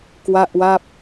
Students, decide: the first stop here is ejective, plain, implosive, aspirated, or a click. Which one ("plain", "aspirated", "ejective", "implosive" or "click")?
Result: plain